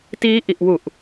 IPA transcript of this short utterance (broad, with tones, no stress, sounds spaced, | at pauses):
t iː˦˥ ʔ i˨˩ ʔ w u˨˩ ʔ